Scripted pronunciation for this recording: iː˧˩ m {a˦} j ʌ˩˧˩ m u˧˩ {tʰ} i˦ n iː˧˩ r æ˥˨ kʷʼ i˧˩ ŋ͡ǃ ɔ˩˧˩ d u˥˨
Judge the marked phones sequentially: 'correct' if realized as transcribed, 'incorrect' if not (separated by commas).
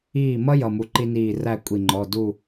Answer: incorrect, incorrect